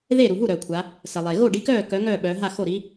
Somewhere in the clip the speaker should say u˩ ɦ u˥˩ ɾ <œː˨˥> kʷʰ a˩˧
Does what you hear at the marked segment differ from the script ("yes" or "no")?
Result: yes